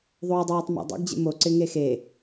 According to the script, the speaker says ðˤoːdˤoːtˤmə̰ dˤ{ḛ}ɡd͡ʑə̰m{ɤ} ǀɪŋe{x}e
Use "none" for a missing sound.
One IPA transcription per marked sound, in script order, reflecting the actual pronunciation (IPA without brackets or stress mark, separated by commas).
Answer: ḛ, o, x